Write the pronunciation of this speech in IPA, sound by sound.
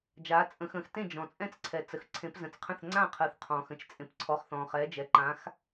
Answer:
d͡ʒ aː˨˦ t͡sʼ ə̃˨˦ x ə̃ː˨˦ x t ẽ˥˨ d͡ʒ ɔ̃˨ t͡sʼ ɛ̃˥˨ t͡s ǀʰ ɛ˨ t͡s ə˨ x ǀʰ ẽ˨˦ p z ə̃˨˦ t͡s qʰ ə̃˥˨ θ ŋ͡ǀ ã˥˨ qʰ ə˨˦ θ qʰ ɔ̃ː˨ x ə̃˥˨ t͡ʃ t͡sʼ ẽ˨ p ǀʰ ɔ˨ χ θ ɔ̃ː˨ χ ɛː˨˦ d͡ʒ ɛ˨ ǃ ã˨˦ x

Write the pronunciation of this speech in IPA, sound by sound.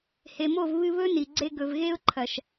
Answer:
h e˨ m o˦˨ v β ɨ˧ β ɵ˦ n i˨ ɡ͡ǀ e˧ ɡ ɵ˨ v ɣ e˦ ʊ̯ ǃʰ ɐ˨ ʃ

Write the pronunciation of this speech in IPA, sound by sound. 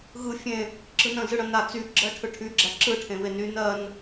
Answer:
ɣ ɯ fʲ ẽ | ǁ ɯ n ə̃ z ɯ ɽ ə̃ n a t͡s y ɡ͡ǁ ɜ ʈʰ ɯ ʈʰ y ɡ͡ǁ æ ǁ ɯ ʈʰ ẽ β e n y n ɜ n

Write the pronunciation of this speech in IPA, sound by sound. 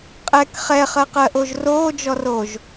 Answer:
qʼ ɛ k χ ɛ χ ɜ q ɜ ʔ o ʒ r oː d͡ʒ ɔ r oː ʒ

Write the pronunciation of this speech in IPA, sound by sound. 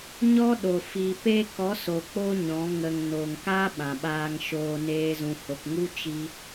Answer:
ɲ ɔ˦ ɗ o˨ f i˨ p e˧ k ɔ˨˦ s o˨ k͡p o˧ ɲ ɔ̃˨˦ ŋ ə˨ ŋ n o˨ ŋ k a˦ ɓ ã˨ ɓ aː˧ ŋ ʃ oː˧ n eː˧ z ũ˨ h o˨ k ŋ u˦ t͡ʃ i˦

